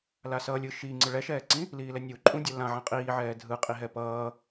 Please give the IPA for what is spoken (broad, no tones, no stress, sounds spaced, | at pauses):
l a s ʌ lʲ ɯ ʃ i ŋ͡ǀ ɯ ɭ ɛ ʃ ɛː ǀ ĩ | l iː l ɛ nʲ u ǃʼ ũ dʲ ʌ l ã ʕ ã qʼ iː ʕ ɛː dʱ ɯ qʼ i ɦ ɛ p ʌː